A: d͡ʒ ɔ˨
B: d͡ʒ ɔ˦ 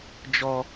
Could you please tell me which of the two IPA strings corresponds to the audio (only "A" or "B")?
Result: B